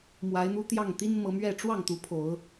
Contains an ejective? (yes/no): no